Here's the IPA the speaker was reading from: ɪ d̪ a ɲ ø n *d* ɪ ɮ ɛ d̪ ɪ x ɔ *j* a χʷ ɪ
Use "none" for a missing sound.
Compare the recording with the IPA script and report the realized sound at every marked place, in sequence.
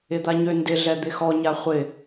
d, ɲ

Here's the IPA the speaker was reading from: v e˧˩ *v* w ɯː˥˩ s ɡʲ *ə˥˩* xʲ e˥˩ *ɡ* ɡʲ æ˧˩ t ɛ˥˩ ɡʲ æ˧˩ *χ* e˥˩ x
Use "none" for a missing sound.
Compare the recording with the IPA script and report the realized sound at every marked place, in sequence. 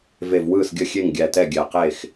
v, ə˥˩, ŋ, q

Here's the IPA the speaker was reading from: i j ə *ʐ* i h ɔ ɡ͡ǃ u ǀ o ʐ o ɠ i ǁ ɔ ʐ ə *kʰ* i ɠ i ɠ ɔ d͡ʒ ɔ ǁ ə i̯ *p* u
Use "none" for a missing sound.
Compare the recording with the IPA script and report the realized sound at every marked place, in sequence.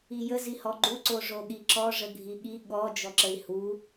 z, ɡʱ, h

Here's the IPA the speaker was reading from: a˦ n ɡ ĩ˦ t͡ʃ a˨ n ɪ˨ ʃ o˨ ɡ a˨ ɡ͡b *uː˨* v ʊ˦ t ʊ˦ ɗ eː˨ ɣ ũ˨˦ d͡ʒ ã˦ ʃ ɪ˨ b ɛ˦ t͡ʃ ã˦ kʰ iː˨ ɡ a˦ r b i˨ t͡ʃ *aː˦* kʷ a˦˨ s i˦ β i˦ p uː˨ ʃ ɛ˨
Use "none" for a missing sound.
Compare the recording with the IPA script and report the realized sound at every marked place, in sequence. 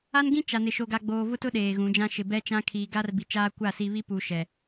oː˨, aː˦

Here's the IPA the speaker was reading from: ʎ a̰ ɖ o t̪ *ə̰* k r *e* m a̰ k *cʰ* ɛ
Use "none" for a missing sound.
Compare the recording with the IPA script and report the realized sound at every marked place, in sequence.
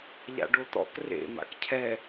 ɔ̰, ḛ, cʰ

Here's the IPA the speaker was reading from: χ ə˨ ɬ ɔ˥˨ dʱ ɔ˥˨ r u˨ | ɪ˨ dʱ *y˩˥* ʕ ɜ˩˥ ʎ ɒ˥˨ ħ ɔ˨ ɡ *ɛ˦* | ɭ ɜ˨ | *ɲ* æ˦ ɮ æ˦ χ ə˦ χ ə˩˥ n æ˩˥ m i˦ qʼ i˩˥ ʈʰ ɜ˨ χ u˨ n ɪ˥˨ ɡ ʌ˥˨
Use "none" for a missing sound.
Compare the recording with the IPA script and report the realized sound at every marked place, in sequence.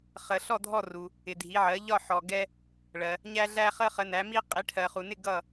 i˩˥, ɛ˦, ɲ

